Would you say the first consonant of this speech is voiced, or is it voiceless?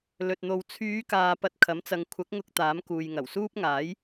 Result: voiced